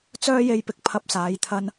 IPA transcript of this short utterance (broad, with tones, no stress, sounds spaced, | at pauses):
t͡s œː˥ j e˧ j p ɪ˨ k̚ pʰ ɐ˧ p̚ s aː˨˧ j t̪ʰ ɐ˧ n